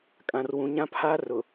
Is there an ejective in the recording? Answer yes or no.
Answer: yes